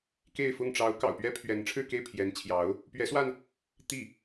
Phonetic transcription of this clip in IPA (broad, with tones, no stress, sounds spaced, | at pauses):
k e˥˧ ɪ̯ f ʊ˥˩ ŋ ʈ͡ʂ ɑ˧˥ ʊ̯ k ɑ̰˨˩ ʊ̯ p ɥ ɛ˥ pʰ ɥ ɛ˧˥ n ʈ͡ʂʰ ɻ̩˥˧ k e˥˩ ɪ̯ pʰ j ɛ˧˥ n t͡ɕʰ j ɑ˧˥ ʊ̯ | p ɥ ɛ˧˥ s w a˧ n | t̪ i˥˩